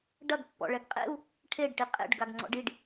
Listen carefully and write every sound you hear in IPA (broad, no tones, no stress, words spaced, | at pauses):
ɖɐɡpːɔ̰ɭɛɡ qʼḛu̯ | ʈʰeɖʈi qʼḛɖɡaɡŋ͡ǀɔ̰ɖ iɖ